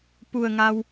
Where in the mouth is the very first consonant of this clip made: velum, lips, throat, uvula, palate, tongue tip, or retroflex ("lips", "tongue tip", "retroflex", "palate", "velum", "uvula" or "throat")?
lips